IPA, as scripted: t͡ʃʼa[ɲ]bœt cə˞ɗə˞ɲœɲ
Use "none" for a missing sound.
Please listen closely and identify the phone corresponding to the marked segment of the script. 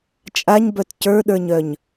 ɲ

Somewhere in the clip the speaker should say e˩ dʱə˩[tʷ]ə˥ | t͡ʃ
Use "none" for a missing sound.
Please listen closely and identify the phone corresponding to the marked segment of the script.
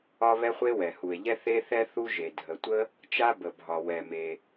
tʷ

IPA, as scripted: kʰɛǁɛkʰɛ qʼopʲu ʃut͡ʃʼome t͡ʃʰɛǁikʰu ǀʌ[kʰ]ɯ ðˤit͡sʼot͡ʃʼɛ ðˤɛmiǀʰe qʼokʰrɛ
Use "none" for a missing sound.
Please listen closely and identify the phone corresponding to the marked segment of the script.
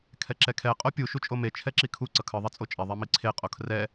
kʰ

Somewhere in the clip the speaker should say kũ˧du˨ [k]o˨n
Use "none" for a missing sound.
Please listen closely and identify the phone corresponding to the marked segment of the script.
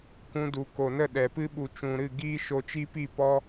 k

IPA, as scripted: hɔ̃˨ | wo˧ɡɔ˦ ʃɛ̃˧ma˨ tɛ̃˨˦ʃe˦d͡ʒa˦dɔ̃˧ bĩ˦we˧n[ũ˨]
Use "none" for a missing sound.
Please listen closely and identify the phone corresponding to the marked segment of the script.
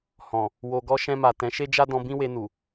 u˨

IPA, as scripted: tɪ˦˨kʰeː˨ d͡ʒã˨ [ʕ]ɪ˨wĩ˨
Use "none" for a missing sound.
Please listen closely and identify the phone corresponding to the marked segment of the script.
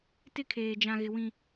ɣ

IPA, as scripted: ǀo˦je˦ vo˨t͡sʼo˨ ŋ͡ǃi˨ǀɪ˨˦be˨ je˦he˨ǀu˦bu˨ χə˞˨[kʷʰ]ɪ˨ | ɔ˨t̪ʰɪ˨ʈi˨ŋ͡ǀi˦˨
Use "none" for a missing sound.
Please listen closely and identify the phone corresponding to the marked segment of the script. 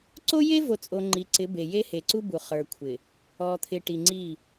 kʷʰ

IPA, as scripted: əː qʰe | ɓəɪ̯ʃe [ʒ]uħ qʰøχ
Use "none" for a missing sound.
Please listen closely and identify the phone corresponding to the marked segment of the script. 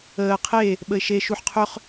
ʃ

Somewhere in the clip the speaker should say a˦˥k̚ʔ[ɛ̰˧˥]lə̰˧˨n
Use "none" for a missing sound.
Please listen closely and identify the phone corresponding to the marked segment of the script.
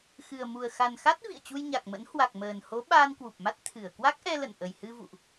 ɛ˧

